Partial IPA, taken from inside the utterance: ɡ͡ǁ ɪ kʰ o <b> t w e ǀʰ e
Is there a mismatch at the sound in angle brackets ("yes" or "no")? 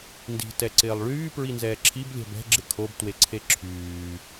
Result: no